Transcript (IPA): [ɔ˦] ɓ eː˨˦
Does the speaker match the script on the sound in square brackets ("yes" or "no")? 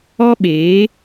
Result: yes